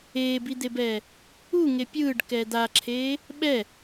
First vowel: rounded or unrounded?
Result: unrounded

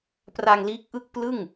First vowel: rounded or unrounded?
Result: unrounded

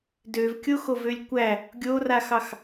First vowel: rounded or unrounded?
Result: rounded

